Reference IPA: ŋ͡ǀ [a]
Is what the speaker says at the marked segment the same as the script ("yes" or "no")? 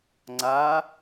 yes